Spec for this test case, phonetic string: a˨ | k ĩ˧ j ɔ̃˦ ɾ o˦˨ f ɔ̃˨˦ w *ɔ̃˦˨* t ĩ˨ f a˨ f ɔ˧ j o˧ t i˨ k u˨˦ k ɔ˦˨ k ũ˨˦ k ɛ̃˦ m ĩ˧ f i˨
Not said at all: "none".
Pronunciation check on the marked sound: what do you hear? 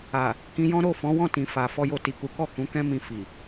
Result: ɔ̃˦˨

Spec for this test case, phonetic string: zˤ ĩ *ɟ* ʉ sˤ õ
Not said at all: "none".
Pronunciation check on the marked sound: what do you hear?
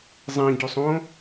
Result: ɟ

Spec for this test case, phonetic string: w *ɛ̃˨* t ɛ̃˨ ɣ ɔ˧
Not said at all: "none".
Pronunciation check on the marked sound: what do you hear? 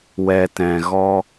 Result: ɛ˨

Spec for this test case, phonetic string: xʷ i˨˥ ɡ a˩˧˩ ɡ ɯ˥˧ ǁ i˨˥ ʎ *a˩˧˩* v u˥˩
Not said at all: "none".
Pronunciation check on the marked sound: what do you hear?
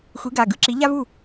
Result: a˥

